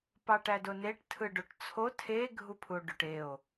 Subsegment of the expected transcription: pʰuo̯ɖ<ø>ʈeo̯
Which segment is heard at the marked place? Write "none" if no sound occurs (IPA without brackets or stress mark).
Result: ø